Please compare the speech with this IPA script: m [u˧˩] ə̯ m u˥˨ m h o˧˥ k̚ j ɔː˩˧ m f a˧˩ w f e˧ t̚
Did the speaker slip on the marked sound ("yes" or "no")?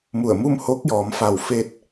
no